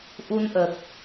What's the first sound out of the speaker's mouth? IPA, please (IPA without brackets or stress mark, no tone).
ʔ